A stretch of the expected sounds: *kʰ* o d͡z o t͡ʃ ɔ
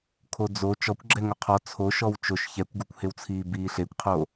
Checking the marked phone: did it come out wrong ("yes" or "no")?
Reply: no